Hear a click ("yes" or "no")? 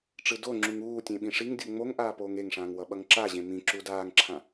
yes